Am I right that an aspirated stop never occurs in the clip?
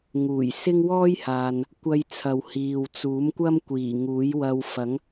no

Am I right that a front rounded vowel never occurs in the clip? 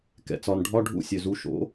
no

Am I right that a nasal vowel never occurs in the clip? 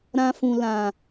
no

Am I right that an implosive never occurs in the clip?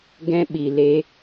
no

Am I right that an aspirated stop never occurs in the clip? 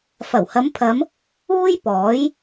no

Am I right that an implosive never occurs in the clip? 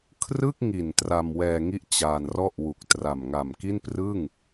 yes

